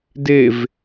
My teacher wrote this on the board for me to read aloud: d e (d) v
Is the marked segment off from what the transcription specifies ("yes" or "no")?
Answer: yes